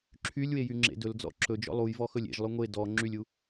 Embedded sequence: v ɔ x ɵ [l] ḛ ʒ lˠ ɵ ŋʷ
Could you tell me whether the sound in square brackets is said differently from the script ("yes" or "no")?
yes